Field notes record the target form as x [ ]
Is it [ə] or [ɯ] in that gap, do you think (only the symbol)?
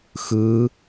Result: ɯ